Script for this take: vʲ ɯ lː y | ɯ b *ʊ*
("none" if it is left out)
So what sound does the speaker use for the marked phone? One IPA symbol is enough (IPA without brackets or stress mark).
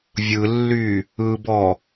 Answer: ɔ